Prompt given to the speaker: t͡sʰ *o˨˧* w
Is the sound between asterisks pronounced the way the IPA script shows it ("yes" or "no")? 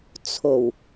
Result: no